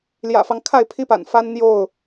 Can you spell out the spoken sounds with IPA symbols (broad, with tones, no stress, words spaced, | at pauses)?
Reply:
ljä̰˨˩fɑ˦ŋ kʰa˥˨ɪ̯pʰi˦pa̰˨˩nfa˦n n̪jo˥˨ʊ̯